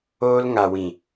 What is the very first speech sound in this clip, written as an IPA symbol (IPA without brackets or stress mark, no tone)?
oː